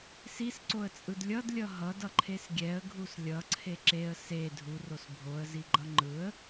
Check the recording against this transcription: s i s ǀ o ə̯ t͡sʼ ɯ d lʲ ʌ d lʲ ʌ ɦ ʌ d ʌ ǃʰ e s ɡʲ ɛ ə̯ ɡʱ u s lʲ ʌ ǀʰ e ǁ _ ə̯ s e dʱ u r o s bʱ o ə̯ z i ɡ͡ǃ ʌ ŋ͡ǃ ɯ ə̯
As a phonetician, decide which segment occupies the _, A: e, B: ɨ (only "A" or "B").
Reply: A